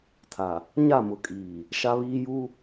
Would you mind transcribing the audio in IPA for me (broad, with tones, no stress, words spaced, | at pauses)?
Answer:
tʰa˨ | ɲa˦˨mʊ˨kʼiː˨ | ʃa˦βiː˦ ju˦